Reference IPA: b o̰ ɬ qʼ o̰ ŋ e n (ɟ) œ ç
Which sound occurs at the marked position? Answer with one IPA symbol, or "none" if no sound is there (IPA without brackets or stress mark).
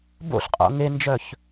d͡ʒ